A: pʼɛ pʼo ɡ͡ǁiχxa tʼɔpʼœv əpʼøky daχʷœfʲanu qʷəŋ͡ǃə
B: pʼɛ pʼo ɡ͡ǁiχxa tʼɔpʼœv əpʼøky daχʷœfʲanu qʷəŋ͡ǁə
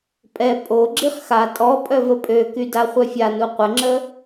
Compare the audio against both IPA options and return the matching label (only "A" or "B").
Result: B